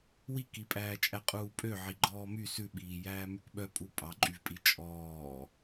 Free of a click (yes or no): no